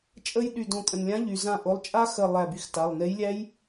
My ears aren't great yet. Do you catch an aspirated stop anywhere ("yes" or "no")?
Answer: no